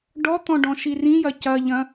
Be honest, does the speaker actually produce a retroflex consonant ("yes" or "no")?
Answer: yes